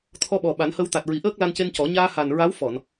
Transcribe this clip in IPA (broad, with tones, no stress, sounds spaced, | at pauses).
t̪ʰ ɔ˧ ɓ ɔ˨˩ ɓ a˨˩˦ n h ə˧ w t̪ a˨˩ t̚ ɹ i˨˩˦ ʔ əː˦˥ k̚ l a˧ n c e˧ n c ɔ˨˩˦ ɲ aː˧ h a˨˩ n ɹ a˧˥ w f ɔ˨˩˨ n